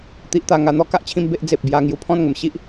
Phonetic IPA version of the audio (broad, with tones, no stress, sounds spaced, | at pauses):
t̪ i˨ ʔ t̪ a˨˩ ŋ a˨˩ n̪ ɔ˧ k a˦ ʔ t͡ɕʰ ĩ˧ m b e˦ ʔ d͡z e˨ p̚ b j a˧ ŋ j u˨˩ pʰ ɔ̃˥˧ n ŋ ə˨˩ m ɕ i˦ ʔ